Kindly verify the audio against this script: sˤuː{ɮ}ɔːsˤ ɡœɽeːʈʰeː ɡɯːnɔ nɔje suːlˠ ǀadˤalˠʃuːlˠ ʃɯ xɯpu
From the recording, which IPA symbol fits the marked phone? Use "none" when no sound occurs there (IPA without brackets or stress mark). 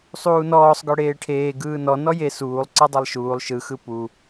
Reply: n